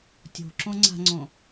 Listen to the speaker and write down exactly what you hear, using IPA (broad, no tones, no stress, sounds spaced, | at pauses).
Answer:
tʲ o̤ ǁ õ ŋ͡ǀ a̤ ŋ͡ǀ õ